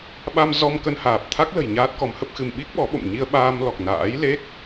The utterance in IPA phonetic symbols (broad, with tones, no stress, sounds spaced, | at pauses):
ɓ a˧ m z ɔ˧ m k ə˧ n h aː˨˩ p̚ t̪ʰ a˦˥ k̚ l ə̤˨˩ j ɲ aː˦˥ t̚ k ɔ˨˦ m h ə˦˥ p̚ x ɨ˧ m ɓ i˦˥ k̚ ɓ ɔ˨˦ ɓ o̰˧˨ m ɲ i˧ ə̯ ɓ aː˧ m l ɔ˨˩ k̚ n a̰ː˧˥ j l e˦˥ k̚